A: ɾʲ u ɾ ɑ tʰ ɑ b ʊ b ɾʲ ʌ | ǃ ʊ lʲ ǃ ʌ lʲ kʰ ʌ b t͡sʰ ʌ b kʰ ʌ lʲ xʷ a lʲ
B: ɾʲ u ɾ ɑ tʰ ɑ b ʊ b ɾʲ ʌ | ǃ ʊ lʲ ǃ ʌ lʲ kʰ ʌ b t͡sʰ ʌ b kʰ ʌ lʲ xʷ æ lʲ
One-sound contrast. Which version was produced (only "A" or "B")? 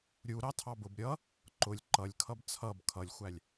B